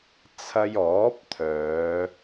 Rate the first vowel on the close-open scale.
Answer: open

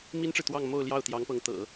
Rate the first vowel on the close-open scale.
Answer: close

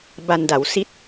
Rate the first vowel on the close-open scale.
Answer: open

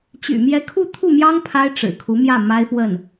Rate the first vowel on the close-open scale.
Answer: close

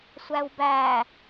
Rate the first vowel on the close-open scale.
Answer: open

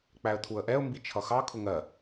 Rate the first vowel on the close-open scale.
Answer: open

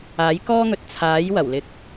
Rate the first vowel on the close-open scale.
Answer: open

